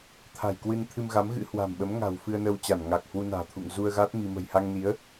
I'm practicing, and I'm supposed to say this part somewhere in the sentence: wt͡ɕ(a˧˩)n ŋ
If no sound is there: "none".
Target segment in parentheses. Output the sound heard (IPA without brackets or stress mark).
a˧˩